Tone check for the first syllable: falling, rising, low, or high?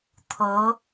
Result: rising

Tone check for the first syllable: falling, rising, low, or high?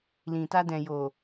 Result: low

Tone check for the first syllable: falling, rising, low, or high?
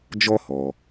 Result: high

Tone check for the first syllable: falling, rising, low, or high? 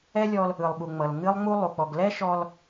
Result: high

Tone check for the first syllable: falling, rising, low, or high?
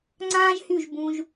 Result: high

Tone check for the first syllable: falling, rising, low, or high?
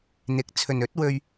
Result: rising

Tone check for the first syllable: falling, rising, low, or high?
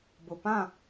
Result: low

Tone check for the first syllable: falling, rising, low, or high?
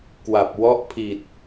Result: low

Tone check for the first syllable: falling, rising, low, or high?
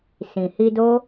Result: low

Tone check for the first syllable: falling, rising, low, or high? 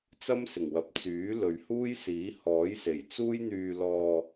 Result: high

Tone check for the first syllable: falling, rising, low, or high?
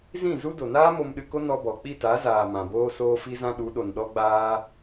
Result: falling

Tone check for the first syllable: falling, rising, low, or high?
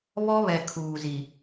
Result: high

